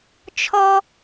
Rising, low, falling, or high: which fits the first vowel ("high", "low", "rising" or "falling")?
high